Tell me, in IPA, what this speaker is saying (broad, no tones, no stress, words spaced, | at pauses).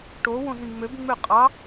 ʈowõz ĩŋ͡møbŋ͡mø qʼɑ